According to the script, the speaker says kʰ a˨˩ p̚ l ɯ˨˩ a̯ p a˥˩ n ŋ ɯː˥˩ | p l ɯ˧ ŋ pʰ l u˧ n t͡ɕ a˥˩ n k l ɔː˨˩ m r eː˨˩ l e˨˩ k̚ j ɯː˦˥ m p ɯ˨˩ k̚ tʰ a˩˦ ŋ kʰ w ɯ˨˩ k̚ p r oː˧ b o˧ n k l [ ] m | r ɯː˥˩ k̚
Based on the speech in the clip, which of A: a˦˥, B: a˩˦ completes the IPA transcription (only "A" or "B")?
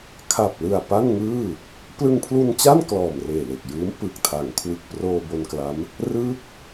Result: A